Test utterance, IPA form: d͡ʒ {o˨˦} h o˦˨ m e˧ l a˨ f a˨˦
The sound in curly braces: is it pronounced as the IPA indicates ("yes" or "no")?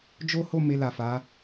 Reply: no